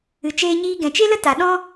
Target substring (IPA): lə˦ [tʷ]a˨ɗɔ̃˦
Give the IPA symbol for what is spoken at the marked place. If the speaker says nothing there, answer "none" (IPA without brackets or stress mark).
t